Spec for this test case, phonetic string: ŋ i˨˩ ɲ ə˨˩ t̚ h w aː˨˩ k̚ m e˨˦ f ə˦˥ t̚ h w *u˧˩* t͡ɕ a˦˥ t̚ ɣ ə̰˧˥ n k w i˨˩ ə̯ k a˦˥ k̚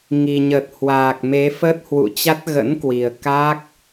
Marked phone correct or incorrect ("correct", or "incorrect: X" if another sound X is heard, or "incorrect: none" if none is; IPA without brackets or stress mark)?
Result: incorrect: ṵ˧˨